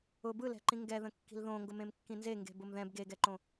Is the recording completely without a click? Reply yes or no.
no